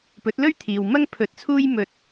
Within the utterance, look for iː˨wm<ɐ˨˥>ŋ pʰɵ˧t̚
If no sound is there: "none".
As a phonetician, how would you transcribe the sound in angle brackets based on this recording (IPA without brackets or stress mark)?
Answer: ɐ˥